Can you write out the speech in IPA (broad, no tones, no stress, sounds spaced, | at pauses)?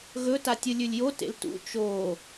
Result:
ɣ ɵ t a tʲ ɨ lʲ ʉ lʲ j o t ḛ l t ṵ t͡ʃ o